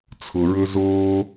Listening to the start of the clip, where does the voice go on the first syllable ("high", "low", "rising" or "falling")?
low